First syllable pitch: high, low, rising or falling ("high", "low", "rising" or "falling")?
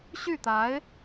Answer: falling